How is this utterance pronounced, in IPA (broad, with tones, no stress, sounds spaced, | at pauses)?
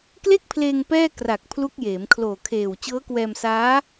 k l e˥˩ k̚ pʰ l eː˧ ŋ p ɛː˥˩ k r a˨˩ k̚ pʰ l u˦˥ k̚ j eː˩˦ m kʰ l oː˨˩ kʰ eː˨˩ w t͡ɕ ɤː˦˥ k w ɛː˧ m s aː˦˥